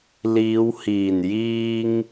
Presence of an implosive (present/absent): absent